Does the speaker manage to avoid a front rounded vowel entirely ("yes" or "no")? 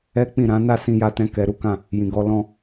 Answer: yes